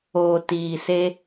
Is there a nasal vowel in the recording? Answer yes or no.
no